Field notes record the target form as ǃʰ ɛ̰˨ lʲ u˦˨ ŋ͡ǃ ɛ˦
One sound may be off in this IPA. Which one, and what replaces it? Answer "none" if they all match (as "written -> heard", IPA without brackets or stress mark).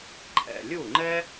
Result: none